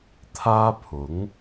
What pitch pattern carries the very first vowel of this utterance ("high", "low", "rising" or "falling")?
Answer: high